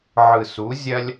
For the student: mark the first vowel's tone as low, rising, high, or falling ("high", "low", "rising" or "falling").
low